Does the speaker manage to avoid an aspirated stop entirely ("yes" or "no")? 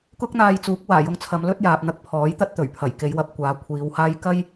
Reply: no